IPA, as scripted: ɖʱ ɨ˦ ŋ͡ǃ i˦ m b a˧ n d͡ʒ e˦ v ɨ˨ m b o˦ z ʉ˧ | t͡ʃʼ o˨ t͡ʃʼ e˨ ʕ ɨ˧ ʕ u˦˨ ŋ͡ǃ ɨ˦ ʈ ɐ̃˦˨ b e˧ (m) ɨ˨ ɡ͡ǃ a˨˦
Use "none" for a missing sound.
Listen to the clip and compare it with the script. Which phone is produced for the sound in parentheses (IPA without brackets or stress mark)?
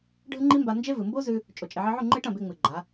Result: ŋ͡m